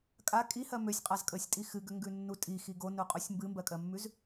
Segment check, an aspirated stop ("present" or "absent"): absent